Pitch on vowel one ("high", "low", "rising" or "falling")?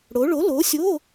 rising